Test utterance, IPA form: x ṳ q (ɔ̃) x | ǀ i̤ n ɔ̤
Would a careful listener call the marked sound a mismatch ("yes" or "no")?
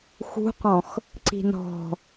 no